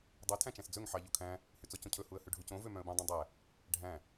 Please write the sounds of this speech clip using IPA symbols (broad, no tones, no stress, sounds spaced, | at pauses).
dˤ o tʰ æ̃ t͡ʃ æ̃ s d͡z ɵ ŋ ħ ɑ ʎ o kʰ æ̃ | h ʉ t͡s ɔ c õ cʰ ɵ h u ə̯ h ʉ ɖʱ u c õ v ø m œ̃ ə̯ b ũ dˤ ĩ dˤ æ | ɖʱ æ̃